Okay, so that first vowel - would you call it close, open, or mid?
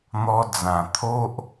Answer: mid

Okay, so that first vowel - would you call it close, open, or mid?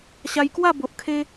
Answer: open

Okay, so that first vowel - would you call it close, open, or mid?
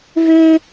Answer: mid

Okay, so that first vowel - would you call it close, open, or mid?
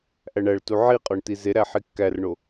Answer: open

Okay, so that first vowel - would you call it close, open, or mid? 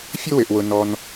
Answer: close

